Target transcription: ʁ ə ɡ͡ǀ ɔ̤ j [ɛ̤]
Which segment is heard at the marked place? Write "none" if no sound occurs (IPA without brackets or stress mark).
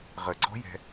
ɛ̤